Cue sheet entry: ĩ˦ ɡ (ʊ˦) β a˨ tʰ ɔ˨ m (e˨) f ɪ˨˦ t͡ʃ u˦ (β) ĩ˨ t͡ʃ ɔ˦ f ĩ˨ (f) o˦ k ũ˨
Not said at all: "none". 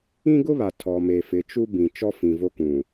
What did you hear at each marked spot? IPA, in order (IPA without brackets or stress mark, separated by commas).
ʊ˦, e˨, b, v